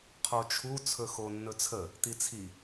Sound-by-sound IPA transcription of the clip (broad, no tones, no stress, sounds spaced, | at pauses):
qʰ o t͡ʃʰ u t͡sʰ ɵ x o nː ɵ t͡sʰ ə | t̪ i t͡sʰ i